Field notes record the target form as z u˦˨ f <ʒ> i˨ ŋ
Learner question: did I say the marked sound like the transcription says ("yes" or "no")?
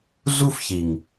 no